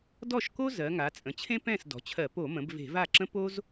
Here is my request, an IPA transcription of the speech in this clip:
d ɔ˥˩ ʃ k o˥ z ɜ˩˧ ŋ a˩˧ t͡sʼ ə̃˩˧ t͡ɕʰ ẽ˥ p ɛ̃˥˩ s d ɔ̤˩˧ t͡ɕʰ ɜ˧˩˧ p o˧˩˧ m ə̃˩˧ b v e̤˧˩˧ v a˥˩ ǁ ə̃˥ p o˥ z

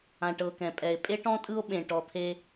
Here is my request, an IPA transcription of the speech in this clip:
ã˨ ʈ ɤ˨ k ɛ̃˨ pʼ ɛ˨ e̯ pʼ e˦ ʈ ɔ̃˦ tʼ ɯ˦ o̯ ɓ ẽ˨ ʈ ɔ˨ t̪ʰ e˧

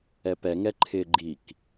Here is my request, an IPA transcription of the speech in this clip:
ɛ p ɛ ŋ ɛ ǃʰ ɪ ɡ͡ǃ i k

